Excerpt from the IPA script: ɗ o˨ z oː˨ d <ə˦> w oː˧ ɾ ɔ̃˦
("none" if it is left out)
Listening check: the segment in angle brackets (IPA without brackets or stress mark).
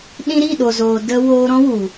ə˧